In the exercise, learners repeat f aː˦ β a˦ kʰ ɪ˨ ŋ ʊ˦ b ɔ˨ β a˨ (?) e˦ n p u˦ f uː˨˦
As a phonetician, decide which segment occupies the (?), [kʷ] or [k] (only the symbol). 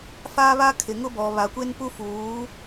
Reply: kʷ